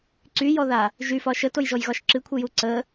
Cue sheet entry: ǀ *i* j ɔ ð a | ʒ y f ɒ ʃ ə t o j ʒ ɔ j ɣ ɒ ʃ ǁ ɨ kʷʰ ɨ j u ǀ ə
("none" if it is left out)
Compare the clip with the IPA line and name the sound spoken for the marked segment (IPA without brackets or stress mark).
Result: y